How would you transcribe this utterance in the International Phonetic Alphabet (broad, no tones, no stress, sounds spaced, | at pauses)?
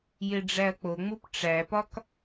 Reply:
j e ɖ͡ʐ æ ɐ̯ k͡p o ŋ͡m u p ʈ͡ʂ æ p ɒ k